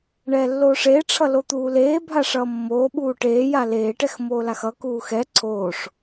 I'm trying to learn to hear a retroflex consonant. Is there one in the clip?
yes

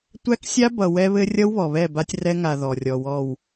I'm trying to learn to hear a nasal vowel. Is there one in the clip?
no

